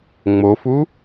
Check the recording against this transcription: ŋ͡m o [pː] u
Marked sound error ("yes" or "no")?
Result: yes